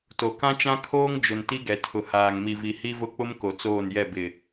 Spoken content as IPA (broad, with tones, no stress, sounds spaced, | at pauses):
t o˨ k ã˦ t͡ʃ ã˦ kʰ oː˦ ŋ d͡ʒ ʊ˨ n t i˦ ɡ ɛ˨ tʰ ʊ˨ h aː˨ ŋ m i˨ v i˨ h i˦ v ʊ˦ k͡p ʊ˦ m k o˨ t͡s oː˦˨ n j ɛ˦˨ b ɪ˨